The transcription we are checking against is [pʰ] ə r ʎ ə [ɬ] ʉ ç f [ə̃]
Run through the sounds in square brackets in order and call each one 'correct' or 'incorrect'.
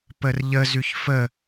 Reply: incorrect: p, incorrect: z, incorrect: ə

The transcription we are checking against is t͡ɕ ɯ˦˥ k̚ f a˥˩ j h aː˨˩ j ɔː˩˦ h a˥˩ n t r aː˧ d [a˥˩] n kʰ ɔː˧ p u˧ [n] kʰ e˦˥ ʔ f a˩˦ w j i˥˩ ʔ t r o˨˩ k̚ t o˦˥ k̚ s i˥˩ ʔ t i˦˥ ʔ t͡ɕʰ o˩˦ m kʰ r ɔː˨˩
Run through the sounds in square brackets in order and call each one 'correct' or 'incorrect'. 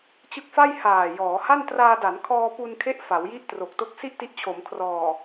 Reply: incorrect: a˩˦, correct

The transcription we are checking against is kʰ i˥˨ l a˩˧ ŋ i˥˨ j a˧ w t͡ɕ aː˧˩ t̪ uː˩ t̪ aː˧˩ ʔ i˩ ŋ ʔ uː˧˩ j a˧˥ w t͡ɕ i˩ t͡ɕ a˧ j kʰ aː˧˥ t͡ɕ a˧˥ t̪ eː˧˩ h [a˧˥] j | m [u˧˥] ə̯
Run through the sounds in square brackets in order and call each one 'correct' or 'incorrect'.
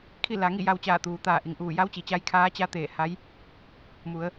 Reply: correct, incorrect: u˩˧

